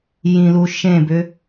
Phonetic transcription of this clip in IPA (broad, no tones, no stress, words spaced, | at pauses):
jĩlu ʃẽbʏ